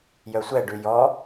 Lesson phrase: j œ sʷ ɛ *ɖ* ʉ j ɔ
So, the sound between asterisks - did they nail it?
yes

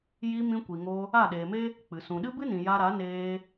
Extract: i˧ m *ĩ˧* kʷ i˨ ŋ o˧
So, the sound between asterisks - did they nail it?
yes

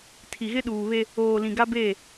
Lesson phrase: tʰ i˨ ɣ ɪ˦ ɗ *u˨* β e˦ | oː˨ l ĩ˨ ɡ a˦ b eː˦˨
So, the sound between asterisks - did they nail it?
no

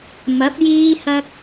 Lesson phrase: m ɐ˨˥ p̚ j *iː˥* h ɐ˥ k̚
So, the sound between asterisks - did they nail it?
yes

